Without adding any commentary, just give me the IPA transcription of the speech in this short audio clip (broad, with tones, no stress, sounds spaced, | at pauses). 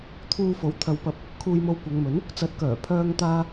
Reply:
t̪ʰ uː˧ f o˨˥ w t̪ʰ ɐ˨˧ w p ɐ˨ p̚ | kʰ uː˧ j m o˧ w kʷ ɐ˨˧ ŋ m ɵ˨˥ n | t͡s ɐ˨˥ t̚ k œː˨˩ pʰ œː˥ ŋ t̪ aː˥